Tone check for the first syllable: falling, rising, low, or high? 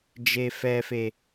low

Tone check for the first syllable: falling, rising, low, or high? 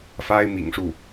high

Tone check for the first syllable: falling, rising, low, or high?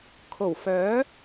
low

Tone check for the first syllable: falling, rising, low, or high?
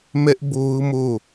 high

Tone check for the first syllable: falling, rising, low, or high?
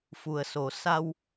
low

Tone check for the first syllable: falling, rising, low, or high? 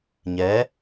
rising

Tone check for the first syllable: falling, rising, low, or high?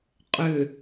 low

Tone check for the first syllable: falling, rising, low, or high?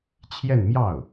falling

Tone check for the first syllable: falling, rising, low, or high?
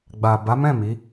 low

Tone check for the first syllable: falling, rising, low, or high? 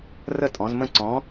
falling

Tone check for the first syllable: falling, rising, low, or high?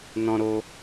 high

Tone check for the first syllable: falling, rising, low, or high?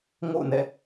falling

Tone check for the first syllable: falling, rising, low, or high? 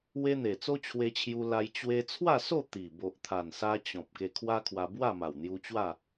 high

